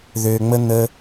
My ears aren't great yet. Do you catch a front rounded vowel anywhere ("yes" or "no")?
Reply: yes